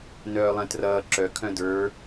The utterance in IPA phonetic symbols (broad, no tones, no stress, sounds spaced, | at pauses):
n œː lˠ ɛ̃ t r ʌː ǁ œ kʰ œ̃ d ə˞